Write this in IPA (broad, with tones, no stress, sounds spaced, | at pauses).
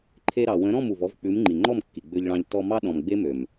ǃʰ e˧ ɾ ɑ˨ w ə̃˨˦ ɾ ɔ̃˦˨ m u˨ v ɔ˧ v k͡p ʉ˨˦ m ŋ͡ǃ i˨ ŋ͡ǃ ɔ˦˨ m kː i˨ ɡ͡b ø˧ ʎ ɭ ɑ̃˧ ʎ t ɔ˧ m ɑ˦ ɗ ɔ̃˨ m ɡ͡b e˦ m ø˨ m